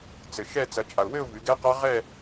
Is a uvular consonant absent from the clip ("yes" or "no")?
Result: no